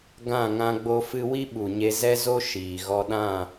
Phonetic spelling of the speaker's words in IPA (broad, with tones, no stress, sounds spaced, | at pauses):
ɡ ã˦˨ ŋ ã˧ ɡ͡b o˧ f ɨ˧ w i˦ ɓ u˨ ɲ e˧ z ɛ˦ z o˦ ʃ iː˨ ɣ ɔ˧ ɗ ã˦˨